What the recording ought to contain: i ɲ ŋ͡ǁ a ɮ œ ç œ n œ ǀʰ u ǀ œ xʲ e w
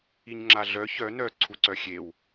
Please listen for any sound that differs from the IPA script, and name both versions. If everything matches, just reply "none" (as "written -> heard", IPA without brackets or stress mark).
none